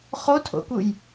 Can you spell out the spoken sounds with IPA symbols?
χ o tʰ o̰ k u j

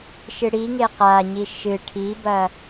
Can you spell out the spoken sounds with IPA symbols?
ʃ ɨ ɽ i ŋ e q a ɲ i ʃ ɨ ʈʰ i b ɐ

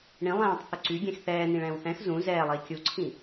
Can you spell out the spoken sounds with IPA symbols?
ɳ ĩ lˠ ɛ̃ː tˤ θ ʊ ǀ y ɡʲ ɛ̃ x θ ɛː n ĩ ɭ ɛ̃ː w θ ɛ̃ x z ũ z ɛː lˠ iː kʲ u ǀʰ ĩ

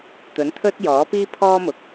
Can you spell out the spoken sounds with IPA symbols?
t̪ ɵ˨˥ n t̪ʰ ɵ˥ t̚ j ɔː˨˥ p iː˥ pʰ ɔː˥ m ʊ˨˥ k̚

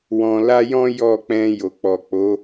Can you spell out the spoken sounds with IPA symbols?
w ɔ̃˧ l a˦ j ɔ̃˦ j ɔ˦˨ k͡p ɛ̃˧ j o˨ k͡p ɔ˨ k͡p o˨˦

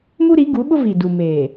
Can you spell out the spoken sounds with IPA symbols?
m u˦ ɾ i˨˦ ɡ u˨˦ ɓ ʊ˦ v i˨ d u˨ m eː˨

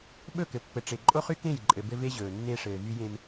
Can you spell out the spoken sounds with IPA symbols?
ɓ ɵ˦˨ k ɘ˨ pː ɘ˨ ʈ͡ʂ e˨ ǃʼ o˦ χ y˦ k ẽ˦˨ j ǃʼ ɘ˨ b ɘ˦ v e˦ ʑ ɵː˨ nː e˦ ʂ ɘː˨ v y˦ j ẽ˦ m

